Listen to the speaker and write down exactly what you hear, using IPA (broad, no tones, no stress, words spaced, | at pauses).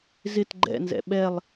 zɪt ɡ͡ǃɛ̰nzɛ̰ ɓɛlˠ